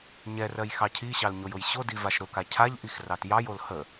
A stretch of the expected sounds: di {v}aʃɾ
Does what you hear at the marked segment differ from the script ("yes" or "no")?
no